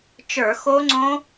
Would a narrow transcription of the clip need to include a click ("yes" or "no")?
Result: yes